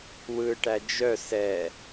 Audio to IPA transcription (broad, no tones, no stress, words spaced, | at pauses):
wɯʈæ d͡ʒœ sɛ